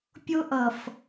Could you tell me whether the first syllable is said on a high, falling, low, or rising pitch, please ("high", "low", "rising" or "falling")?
high